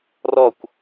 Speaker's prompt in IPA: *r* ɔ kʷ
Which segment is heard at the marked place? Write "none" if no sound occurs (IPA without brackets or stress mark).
r